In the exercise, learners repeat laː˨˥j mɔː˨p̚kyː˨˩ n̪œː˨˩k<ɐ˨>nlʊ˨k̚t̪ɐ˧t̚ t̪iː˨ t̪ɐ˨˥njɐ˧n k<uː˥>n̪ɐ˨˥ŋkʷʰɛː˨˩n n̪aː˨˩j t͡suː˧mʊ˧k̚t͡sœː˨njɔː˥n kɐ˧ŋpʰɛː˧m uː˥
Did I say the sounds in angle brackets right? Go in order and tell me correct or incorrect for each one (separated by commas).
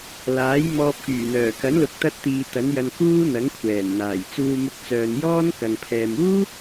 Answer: incorrect, correct